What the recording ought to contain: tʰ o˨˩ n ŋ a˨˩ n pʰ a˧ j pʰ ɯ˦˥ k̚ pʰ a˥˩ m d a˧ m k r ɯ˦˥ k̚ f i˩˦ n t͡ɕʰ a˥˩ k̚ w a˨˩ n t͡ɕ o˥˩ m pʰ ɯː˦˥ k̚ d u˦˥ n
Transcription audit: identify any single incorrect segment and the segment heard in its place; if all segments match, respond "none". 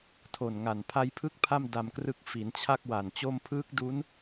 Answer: none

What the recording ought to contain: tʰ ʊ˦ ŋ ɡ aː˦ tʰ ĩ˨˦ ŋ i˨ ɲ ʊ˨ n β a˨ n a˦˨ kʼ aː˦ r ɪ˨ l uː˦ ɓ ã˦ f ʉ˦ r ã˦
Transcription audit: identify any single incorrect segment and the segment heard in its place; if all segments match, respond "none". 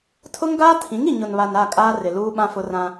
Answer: ʉ˦ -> ʊ˦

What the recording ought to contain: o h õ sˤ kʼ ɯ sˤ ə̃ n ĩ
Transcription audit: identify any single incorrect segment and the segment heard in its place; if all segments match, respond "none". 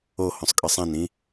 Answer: ə̃ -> ɛ̃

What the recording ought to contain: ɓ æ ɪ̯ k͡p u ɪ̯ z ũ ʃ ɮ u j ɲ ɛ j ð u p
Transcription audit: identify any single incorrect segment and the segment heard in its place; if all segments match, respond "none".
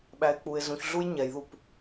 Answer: ʃ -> ç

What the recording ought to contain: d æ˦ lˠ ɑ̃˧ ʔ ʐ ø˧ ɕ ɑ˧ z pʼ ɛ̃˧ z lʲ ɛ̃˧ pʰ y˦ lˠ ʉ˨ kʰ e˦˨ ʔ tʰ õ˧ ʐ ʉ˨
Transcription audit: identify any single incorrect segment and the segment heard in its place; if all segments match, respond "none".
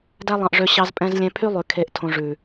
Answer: none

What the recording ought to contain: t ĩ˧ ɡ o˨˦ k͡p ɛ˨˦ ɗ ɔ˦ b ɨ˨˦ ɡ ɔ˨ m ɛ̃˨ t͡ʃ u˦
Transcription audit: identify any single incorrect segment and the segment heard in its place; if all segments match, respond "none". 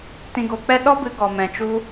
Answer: ɛ˨˦ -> ɛ˦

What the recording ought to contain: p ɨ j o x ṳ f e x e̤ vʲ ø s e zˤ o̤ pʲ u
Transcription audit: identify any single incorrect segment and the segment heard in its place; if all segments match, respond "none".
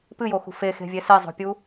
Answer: ø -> e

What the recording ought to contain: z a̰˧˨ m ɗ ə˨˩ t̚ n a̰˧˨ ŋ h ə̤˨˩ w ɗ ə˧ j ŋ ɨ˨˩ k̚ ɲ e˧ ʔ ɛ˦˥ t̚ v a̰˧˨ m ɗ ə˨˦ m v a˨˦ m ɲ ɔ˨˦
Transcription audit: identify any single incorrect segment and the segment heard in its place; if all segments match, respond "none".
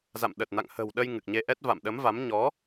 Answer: none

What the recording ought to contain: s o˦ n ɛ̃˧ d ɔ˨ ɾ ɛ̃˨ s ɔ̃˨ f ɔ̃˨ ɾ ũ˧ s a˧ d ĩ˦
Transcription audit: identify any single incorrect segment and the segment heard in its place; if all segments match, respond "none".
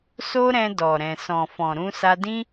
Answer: n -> ɾ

